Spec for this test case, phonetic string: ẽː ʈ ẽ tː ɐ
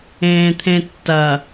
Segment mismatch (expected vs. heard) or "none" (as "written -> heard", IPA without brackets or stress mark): ʈ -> t̪ʰ